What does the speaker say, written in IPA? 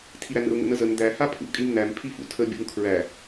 tʰiɾænə̰ʊ̯ ŋə̰nəzən d̪æ hapʰṵ kʼimnæm pʰifṵtʰə bʲṵŋkʰɹæ

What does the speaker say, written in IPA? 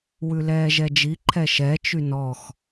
wʉlɛːʒɛd͡ʒi ǃʰɛʃɛ t͡ʃynɔx

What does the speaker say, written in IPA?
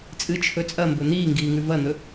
t͡sʼɨt͡ʃʰɵ t͡sʼɐmbɵ n̪iːŋɡiːŋʉ vɐn̪ɵ

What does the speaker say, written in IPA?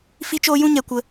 fi˦t͡ʃoː˦jũ˦ɲɛ˧ kʷə˧

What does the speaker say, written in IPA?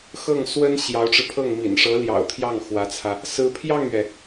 xɤ˥˩ŋswə˥n ɕjɑ˧˥ʊ̯ʈ͡ʂɻ̩˧pʰɤ˥˩ŋ mḭ˨˩nʂɤ˧˥ljɑ̰˨˩ʊ̯t̪ʰjɑ˥˩ŋ xwä˧˥t͡sʰä˧ | sɹ̩˧˥pʰjɑ˥˩ŋɥɛ˩

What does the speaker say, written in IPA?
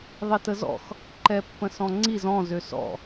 ðˤitəzɔ̰x | ǃɛpːə̃sɔ̃ŋ͡ǀiz ɔ̃ zøsɔ̰

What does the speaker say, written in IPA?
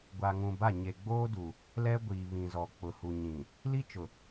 ɡʷa˨ŋũ˨ba˦˨ ɲe˨ ɡ͡boː˦du˨ | lɛ˦ɡʷiː˨βĩ˨zɔ˨ k͡pʊ˨hu˨ɲĩ˨ | li˦t͡ʃʊ˨

